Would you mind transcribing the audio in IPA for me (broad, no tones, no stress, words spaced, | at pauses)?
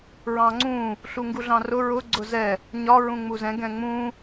ɹɑ̃ŋ͡ǀũ | ɬuŋɡuɮɑ̃rʊ ɹʊ ɡ͡ǀʊzɛ | ɲɒ ɹũŋ͡muzɛ̃ ɡɛ̃ŋ͡mũ